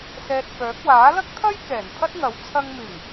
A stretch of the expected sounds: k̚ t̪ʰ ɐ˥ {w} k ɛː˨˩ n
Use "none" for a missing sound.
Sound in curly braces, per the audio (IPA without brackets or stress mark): j